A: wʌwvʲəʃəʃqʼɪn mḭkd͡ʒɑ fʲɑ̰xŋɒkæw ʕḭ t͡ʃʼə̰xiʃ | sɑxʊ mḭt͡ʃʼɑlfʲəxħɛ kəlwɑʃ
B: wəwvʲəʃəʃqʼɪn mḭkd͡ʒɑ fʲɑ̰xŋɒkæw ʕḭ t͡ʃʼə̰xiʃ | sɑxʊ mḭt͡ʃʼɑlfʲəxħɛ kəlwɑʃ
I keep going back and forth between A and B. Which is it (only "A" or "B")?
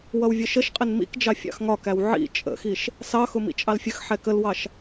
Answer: A